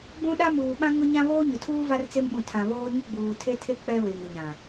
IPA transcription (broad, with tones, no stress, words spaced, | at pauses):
ɡ͡bũ˦ ɗa˦muː˨ ɓã˦ŋʊ˦ɲã˦ βoː˦ɲʊ˨tʰuː˦ va˦rt͡se˦mɓũ˨ tʰã˨βoː˦ ɲʊ˦ɡ͡buː˨tʰe˦tʰe˦ k͡pɛ˦ βe˨ŋ ɪ˨ɲã˨